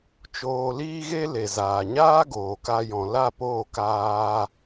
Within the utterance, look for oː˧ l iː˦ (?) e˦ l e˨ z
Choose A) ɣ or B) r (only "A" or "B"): A